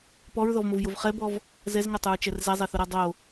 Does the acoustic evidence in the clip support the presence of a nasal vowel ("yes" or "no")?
no